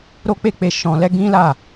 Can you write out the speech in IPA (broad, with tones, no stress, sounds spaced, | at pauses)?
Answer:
ɾ o˦ k͡p e˦˨ k͡p e˧ ʃ ɔ̃˧ l ɛ˦ ɡ ĩ˦ l a˦˨